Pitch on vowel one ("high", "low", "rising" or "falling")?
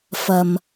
low